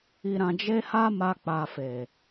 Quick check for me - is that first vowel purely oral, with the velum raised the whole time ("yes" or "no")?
yes